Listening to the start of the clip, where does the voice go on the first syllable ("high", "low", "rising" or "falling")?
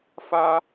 high